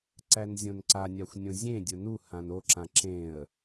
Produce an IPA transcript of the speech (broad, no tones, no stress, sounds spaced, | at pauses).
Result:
ǀ æ n zʲ õ n ǀ a nʲ a xʷ nʲ õ zʲ ẽ dʲ ʊ n u h ã n o ǁ ã ǁ ẽ ə̯